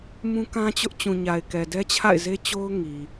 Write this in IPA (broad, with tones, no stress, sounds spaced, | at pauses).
m ũ˦ k ã˦ t͡ɕ ʊ˦ ʔ t͡ɕ ũ˨ ɲ a˨ ɪ̯ k ɛ˨ d ɛ˦ t͡ɕʰ a̰˦˨ ɪ̯ z e˦ t͡ɕ o˦ ʊ̯ ŋ i˨